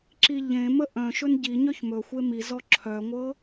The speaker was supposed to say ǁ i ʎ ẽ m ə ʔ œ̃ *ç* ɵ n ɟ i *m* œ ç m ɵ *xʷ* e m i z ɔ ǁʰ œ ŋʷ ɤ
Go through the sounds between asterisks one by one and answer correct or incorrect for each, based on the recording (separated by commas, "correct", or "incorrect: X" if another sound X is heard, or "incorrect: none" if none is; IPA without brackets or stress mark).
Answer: incorrect: ʃ, incorrect: ɲ, correct